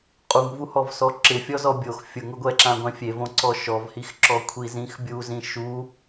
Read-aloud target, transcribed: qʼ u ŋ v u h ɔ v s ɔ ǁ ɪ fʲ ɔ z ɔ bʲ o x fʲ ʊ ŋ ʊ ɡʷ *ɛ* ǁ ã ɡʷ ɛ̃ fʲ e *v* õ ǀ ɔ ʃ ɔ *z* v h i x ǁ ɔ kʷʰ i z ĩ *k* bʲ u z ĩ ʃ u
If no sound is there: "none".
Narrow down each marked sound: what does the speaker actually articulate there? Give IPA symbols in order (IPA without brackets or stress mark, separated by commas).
ɛ, v, none, x